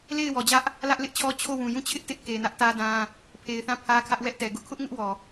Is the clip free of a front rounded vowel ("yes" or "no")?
yes